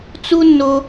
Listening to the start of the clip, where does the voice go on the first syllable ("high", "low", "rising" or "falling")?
high